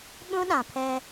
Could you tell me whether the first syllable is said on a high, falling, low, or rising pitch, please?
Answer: high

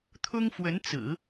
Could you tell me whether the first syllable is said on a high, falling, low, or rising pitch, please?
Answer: high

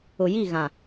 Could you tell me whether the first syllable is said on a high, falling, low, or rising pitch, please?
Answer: low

